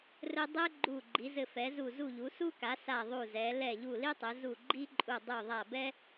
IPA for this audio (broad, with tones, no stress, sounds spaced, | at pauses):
r ɘ˦ dˤ ɛ˦ ɡ͡ǃ u˧˩ ɡ͡ǃ i˩˧ z ɘ˧˩ f ɛ˩˧ z u˧˩ z u˧˩ ʎ u˩˧ s u˦ k a˩˧ s a˧˩ ðˤ u˧˩ z ɛ˩˧ l ɛ˧˩ ʎ u˧˩ l i˦ tˤ ɘ˩˧ z u˧˩ ɡ͡ǃ i˦ ǃʼ u˧˩ dˤ u˧˩ ðˤ a˧˩ b ɛ˦